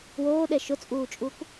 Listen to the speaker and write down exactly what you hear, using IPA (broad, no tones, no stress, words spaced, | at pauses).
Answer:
woːɗɛ ʃʊt͡sʼuːt͡ʃʼuk